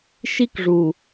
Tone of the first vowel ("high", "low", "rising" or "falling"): high